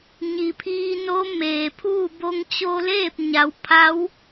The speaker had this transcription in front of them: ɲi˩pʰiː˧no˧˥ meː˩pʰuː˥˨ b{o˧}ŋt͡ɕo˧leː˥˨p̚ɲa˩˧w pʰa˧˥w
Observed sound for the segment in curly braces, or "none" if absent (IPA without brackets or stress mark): o˧